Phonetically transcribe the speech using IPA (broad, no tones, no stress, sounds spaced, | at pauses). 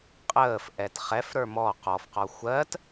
qʼ əː f ʔ ɛ t χ ɛ f ɾ ə˞ m ɔ q ɔ f q ɔ xʷ ɜ t